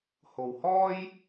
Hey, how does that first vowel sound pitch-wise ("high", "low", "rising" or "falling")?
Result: low